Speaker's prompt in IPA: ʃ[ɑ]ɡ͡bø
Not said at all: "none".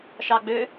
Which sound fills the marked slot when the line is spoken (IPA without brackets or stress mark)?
ɑ